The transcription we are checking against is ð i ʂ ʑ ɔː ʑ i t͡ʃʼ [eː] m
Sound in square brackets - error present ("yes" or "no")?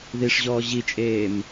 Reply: no